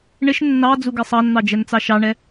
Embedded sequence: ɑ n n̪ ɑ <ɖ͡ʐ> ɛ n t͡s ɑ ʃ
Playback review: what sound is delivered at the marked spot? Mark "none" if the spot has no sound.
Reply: d͡ʒ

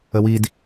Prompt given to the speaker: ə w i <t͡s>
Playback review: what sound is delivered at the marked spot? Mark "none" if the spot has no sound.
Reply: d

